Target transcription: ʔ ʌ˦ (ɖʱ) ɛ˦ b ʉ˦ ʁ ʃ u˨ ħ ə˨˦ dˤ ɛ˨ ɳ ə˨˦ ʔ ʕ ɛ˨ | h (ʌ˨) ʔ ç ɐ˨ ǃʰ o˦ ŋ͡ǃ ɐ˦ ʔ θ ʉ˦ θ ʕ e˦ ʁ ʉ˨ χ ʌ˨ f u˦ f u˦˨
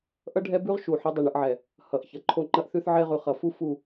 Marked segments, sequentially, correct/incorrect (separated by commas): correct, correct